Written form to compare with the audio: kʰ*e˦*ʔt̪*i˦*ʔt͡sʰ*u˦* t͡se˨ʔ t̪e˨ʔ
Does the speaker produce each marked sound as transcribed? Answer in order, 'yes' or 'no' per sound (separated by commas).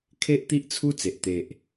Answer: yes, yes, yes